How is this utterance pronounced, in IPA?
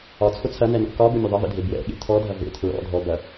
ɒ t͡sʰ ʊ t͡sʰ ɐ n ɛ n ɔ̰ k ɒ b ʊ mʲ ʊ ðˤ ʌ v ḛ dʱ e b w ɛ̰ ɠ ḛ tʰ ɔ dʱ ɐ v ḛ tʰ ɹ ɔ̰ dʱ ɔ b ɐ

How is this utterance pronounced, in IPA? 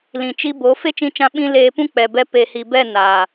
l ĩ˨ t͡ʃ i˧ b o˨˦ f e˦ t͡ʃ ĩ˧ t͡ʃ ã˧ ɓ ĩ˧ l eː˧ p ũ˦ k͡p ɛ˨ b ɛ˧ p e˨ h i˨ b ɛ˦˨ n aː˨

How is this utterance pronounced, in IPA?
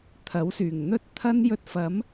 t̪ʰ ɐ˨˥ w s yː˨˩ ŋ n̪ ɵ˥ t̚ t̪ʰ ɐ˥ n j ɵ˧ t̚ f ɐ˨˥ m

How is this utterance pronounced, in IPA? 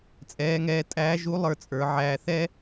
t͡sʼ ɛː˩˧ ŋ ɛː˩˧ tʼ æː˧˥ ʒ u˧˥ lˠ ə˞˧ t͡sʼ ə˞˩˧ ʕ æː˧ θ ɛ˥

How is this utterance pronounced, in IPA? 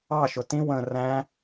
ɑ ʃ ʊ t ĩ w ə̃ r æ̃

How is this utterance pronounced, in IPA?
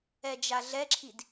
ɛ d͡ʒ a ɮ ɛ ǁʰ i d

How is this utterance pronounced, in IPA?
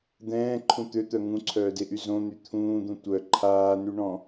d̪ ɛ̃ː ǃʰ ũ t̪ ø t̪ œ ŋ ũ ǀʰ œː d e ʔ y z õ n̪ y t̪ʰ ũː d̪ ũ tʷ œ ǃʰ aː n y ɳ ɔ̃

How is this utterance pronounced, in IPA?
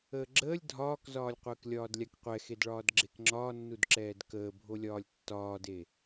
əː ɡ͡ǁ əː lʲ dʱ ɒː k z ɒː lʲ qʷ əː k lʲ ɒː d lʲ a k qʷ ɛ x e d ɭ ɒː d ɡ͡ǁ e k ŋ͡ǁ ɒː nː u d ǁ ɛː d k əː bʱ o lʲ ɒː lʲ tː ɒː d e

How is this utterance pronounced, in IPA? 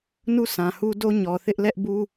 n u˦˨ sʰ ã˨ h u˦ d o˦ ɲ ɔ˨ θ ɪ˦ ʔ l ɛ˦ ʔ b u˦

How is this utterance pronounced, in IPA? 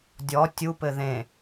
dʲ ɔ tʲ u p ɘ ð ẽ

